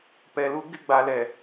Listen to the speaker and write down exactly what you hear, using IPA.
p ɛ˨ l u˦ ɡ ɪ˦˨ ɡ͡b a˨ l ɛ˨

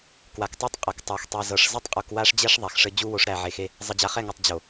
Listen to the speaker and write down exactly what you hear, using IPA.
k w a˨ k tˤ u˦ tˤ qʼ ɤ˨ k tˤ a˨ x tˤ e˨ z ɤ˨ ʂ z ɘ˦ tˤ qʼ u˨ k w a˦ ʂ d͡ʑ ɛ˦ ʂ ðˤ æ˨ x ʂ ɘ˦ d͡ʑ u˦ w o˨˦ ʂ ɾ æ˨ ʕ e˨ x e˦ | zˤ ɘ˨ d͡ʑ a˨ χ ɛ˦˨ ŋ ɤ˨ tˤ d͡ʑ o˨

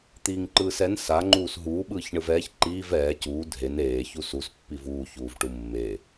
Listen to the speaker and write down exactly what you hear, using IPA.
t̪ iː ŋ ǃ ɯː s ɛ n s a ŋ͡ǃ uː s ɦ uː ɓ ɯː ç ɳ ɯ v ɛː ç ǃ iː v ɛː c uː dʱ e n eː ç u s u s pː i v uː ç uː v ʈ u mː e

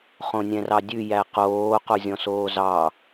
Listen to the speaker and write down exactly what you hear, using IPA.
χ õ nʲ ɛ̃ r ɑ dʲ ʉ j æ q oː q o zʲ ɔ̃ s oː z ɑ

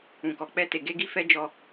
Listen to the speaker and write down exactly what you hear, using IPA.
ũ˨ k ɔ˨ k͡p ɛ˧ t e˨ ɡ e˧ ɡ i˧ f ɛ˦ d͡ʒ ɔ˧

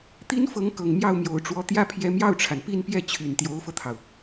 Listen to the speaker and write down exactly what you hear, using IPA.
t̪ i˥ n f ɤ˧˥ ŋ k ɤ˨˩ ŋ m j ɑ˥˩ ʊ̯ m j o˨˩ ʊ̯ ʈ͡ʂ w ɔ˧˥ t̪ j ä˥˩ pʰ j ɛ˧˥ m j ɑ˥˩ ʊ̯ ʈ͡ʂʰ a˩ n p i˥˧ n p j ɛ˥˩ t͡ɕʰ y˨˩ n t̪ j o˧˥ ʊ̯ f ɤ˧ t̪ʰ ɑ˩ ʊ̯

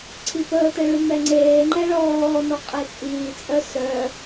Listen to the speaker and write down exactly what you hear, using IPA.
ǀʰ i p əː t ə ɭ ʉ m ɛ ŋ͡ǀ eː ŋ͡ǃ ɛ ɭ ɔː n ɔ qʼ e t͡sʼ iː t͡sʼ œ s œ

